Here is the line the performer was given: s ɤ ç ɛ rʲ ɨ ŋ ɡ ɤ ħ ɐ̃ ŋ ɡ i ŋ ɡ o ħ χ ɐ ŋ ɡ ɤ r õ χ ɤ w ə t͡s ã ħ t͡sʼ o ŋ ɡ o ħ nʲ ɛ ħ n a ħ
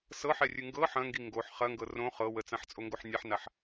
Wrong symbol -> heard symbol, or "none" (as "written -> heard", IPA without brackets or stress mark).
ç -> ħ